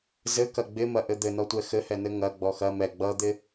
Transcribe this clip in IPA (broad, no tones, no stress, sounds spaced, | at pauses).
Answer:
z ɘ k ɐ ɡ͡b ɪ m ɐ ʔ ɘ d̪ ɘ n ɔ tʷ ɛ x ɘ h ɛ n ɘ ŋ ɐ ɡ͡b ɔ x ɐ m ɛ ɡ͡b ʌ d̪ ɪ